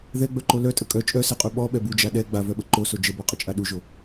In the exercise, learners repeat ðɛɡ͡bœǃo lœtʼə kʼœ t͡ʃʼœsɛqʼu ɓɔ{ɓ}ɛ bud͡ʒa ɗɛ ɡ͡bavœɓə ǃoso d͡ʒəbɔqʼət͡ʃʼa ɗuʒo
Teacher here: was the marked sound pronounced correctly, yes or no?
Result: yes